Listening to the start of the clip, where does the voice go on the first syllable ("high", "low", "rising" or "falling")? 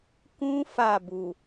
high